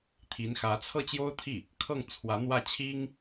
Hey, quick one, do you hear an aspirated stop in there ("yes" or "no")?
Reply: yes